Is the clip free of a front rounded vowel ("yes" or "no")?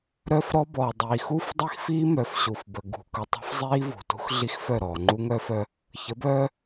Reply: no